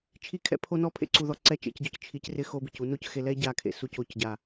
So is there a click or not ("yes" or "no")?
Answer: yes